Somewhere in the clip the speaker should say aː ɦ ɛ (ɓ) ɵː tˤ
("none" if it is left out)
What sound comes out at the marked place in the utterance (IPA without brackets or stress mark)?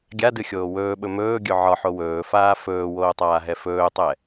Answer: f